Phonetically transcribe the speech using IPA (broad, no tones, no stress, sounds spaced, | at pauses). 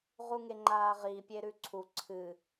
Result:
ʁ u ŋ e ŋ͡ǃ aː ʁ i pʲ e ɾ ʉ ǀʰ u ǀʰ ɨ